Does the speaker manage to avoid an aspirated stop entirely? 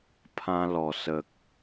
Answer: no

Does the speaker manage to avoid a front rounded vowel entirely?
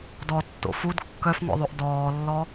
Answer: no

